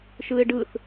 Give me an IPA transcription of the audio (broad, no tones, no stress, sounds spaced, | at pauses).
ʃ ɯ e̯ ɖ ɯ θ